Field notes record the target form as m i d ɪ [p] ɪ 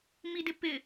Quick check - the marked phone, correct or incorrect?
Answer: correct